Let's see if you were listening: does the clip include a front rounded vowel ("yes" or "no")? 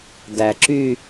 yes